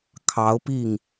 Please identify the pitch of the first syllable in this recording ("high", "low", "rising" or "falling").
rising